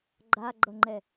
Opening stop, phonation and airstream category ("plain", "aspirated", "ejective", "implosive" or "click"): click